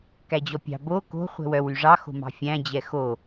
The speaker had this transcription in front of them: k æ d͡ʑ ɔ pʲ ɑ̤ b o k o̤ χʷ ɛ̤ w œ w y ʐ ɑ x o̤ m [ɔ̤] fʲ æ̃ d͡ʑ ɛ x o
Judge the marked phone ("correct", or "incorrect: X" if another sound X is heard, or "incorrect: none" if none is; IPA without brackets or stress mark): incorrect: ɑ̤